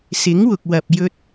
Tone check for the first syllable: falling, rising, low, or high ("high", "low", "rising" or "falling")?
rising